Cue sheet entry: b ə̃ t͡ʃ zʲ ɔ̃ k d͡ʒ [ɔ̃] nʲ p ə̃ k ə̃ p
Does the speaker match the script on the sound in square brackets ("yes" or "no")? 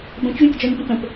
no